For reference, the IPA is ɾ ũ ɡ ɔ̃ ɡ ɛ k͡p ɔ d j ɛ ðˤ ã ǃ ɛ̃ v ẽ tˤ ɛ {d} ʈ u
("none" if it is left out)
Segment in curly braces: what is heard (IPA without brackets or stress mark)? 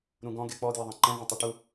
none